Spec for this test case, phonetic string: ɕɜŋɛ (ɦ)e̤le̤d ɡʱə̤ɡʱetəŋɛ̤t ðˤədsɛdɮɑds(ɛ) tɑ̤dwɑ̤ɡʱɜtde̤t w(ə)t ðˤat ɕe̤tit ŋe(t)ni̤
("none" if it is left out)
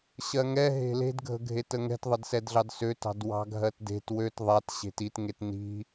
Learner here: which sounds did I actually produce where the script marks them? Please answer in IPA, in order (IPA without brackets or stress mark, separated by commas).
ɦ, ø, ø, t